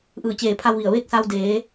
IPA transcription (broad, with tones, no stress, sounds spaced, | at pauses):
ʔ ɯː˧˩ t͡ɕ eː˧˩ pʰ a˧ w ʋ i˧˩ ə̯ ʋ e˥˨ k̚ s a˧ w d eː˩˧